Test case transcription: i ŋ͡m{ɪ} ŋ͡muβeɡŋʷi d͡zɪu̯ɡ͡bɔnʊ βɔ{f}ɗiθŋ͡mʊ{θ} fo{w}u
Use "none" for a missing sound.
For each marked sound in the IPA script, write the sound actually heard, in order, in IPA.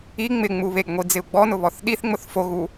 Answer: ɪ, θ, θ, ɣ

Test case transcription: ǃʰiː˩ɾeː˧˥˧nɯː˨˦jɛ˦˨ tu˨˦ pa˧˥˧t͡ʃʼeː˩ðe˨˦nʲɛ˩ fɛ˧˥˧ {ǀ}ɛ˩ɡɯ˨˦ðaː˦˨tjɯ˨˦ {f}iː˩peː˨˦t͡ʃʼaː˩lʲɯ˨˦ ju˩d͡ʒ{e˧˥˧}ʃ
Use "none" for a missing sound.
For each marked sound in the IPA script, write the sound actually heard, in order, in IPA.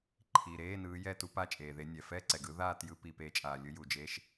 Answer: ǀ, p, e˧˥˧

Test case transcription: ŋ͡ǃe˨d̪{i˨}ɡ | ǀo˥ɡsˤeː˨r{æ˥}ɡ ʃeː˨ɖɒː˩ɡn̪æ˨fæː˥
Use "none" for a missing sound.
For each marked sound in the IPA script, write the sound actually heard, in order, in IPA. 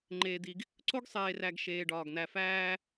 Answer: i˨, æ˨

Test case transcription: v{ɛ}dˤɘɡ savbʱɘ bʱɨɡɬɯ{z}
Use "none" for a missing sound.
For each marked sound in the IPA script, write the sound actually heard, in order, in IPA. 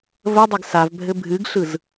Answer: ə, z

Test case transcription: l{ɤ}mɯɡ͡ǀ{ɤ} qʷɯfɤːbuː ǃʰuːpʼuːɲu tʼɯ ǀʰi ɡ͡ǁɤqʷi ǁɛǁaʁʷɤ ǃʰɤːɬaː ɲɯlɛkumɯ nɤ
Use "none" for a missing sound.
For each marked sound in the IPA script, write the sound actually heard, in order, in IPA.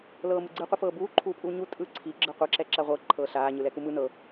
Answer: ɤː, ɯ

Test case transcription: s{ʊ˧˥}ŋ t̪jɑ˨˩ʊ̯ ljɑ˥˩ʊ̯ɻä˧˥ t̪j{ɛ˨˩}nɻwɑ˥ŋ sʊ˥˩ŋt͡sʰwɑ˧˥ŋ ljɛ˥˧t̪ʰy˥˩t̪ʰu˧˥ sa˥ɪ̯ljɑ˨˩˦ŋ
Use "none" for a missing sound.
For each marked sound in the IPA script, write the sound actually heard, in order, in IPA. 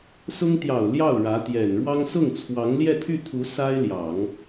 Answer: ʊ˥, ɛ˨˩

